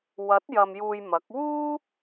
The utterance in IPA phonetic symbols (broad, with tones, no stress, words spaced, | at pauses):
wɐ˨˥t̚jɐ˨m juː˧jmɐ˨˥k̚ wuː˥